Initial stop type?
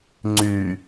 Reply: click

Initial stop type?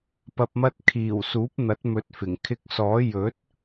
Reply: plain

